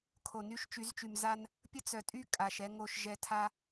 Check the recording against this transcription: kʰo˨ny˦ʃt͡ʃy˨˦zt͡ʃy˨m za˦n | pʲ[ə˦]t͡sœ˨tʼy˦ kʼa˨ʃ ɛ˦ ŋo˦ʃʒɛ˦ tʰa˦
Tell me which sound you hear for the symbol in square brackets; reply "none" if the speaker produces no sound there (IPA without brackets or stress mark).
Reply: ə˦